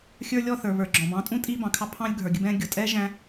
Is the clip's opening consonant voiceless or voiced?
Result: voiceless